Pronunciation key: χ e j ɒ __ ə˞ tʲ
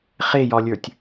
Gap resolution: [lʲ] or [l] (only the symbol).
lʲ